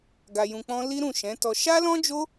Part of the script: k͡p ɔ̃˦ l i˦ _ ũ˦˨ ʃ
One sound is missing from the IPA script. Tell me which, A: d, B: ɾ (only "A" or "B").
B